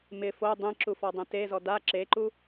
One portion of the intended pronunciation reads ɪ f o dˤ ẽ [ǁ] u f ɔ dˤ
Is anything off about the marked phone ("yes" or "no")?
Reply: no